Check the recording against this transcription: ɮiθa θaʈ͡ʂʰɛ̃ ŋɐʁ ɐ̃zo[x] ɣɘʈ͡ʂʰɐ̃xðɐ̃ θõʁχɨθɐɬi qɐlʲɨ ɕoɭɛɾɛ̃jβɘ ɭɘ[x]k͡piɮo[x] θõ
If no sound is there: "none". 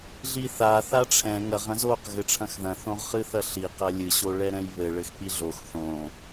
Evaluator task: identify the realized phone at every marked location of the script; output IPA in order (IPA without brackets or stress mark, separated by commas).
q, x, x